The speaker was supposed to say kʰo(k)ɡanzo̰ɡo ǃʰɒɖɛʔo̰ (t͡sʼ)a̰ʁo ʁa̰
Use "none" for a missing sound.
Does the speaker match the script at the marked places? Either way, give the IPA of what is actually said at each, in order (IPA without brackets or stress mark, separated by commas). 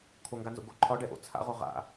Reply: ŋ, t͡sʰ